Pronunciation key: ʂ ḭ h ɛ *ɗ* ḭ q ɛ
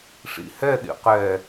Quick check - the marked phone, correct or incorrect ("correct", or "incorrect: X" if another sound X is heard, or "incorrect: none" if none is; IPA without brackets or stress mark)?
correct